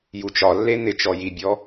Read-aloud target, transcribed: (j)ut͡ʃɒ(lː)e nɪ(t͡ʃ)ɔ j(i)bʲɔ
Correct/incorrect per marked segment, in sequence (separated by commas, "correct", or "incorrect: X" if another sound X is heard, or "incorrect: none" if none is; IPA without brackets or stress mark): correct, correct, correct, correct